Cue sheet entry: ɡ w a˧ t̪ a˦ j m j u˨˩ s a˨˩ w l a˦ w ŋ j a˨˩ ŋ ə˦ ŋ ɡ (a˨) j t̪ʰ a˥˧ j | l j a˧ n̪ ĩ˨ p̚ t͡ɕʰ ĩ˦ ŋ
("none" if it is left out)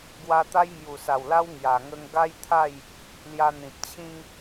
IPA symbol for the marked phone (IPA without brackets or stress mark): a˦